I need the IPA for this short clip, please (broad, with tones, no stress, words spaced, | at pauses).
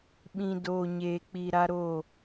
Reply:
ɓĩ˨ doː˨ɲeː˨k͡pi˨ ɾa˦ɾo˦˨